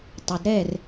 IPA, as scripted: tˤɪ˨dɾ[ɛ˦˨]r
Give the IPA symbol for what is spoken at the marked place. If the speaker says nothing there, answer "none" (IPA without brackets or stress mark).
ɛ˦˨